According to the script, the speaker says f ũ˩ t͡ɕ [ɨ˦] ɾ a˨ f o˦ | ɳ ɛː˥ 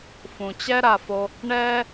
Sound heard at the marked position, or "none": ɛ˦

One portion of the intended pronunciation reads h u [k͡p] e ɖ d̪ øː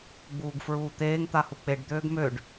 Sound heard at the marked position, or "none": k͡p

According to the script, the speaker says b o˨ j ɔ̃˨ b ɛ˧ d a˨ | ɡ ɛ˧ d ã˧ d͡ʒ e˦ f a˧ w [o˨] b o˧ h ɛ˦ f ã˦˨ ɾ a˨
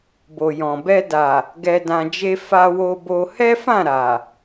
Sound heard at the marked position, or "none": o˧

